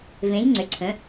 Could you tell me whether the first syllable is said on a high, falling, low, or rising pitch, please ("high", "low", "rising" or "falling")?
rising